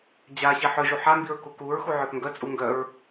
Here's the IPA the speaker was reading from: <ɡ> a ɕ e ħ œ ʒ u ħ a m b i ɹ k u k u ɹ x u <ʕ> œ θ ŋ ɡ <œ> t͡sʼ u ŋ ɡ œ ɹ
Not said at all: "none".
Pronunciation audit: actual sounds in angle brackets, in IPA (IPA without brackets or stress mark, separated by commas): d͡ʑ, ʕ, œ